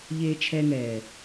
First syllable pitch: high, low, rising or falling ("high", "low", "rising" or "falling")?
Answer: high